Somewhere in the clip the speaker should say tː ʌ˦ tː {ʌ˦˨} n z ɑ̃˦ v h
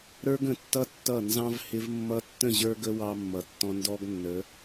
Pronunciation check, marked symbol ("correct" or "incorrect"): correct